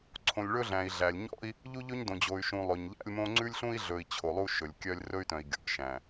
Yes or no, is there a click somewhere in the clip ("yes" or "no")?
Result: yes